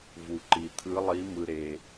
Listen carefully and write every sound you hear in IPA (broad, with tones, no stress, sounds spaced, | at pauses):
v u˨ ǃ i˨ t̪ʰ ɯ˧˥ lˠ i˧˥ m ɯ˨ ɾ e˨